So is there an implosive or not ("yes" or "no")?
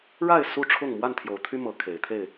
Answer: no